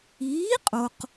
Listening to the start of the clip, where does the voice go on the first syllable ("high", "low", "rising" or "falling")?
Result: rising